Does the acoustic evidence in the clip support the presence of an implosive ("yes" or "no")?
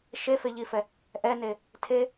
no